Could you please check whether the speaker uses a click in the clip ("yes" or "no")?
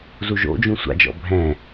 no